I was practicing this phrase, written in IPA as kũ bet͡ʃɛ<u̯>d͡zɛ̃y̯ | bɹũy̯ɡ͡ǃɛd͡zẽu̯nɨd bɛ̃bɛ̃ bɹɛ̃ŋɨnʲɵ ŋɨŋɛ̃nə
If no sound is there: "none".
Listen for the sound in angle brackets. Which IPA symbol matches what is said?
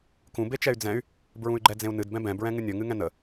y̯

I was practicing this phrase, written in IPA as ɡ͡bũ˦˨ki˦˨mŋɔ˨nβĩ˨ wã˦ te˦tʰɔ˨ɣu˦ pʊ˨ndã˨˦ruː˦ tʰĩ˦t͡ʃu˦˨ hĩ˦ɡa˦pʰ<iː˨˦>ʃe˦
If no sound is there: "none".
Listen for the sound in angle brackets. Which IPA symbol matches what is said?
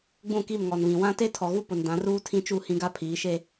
iː˨˦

